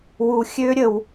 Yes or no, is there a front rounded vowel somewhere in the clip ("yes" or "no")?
yes